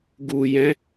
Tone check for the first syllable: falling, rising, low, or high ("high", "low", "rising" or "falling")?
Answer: low